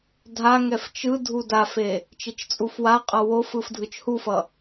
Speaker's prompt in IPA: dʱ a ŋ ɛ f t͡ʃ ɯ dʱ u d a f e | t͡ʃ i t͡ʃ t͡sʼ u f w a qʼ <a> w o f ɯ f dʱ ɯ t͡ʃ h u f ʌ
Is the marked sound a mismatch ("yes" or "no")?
yes